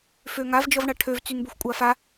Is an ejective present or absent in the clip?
present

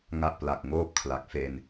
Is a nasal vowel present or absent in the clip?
absent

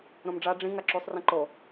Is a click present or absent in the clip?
present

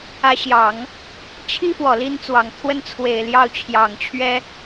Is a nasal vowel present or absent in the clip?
absent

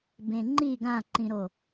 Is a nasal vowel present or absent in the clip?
present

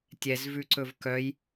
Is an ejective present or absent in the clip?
absent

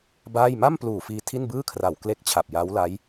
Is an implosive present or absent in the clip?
absent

